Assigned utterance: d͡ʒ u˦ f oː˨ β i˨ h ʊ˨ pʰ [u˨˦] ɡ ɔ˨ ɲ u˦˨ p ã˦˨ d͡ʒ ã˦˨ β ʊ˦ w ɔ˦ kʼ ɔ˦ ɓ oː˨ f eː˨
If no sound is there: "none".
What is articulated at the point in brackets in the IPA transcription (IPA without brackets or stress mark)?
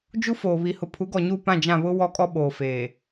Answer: u˨˦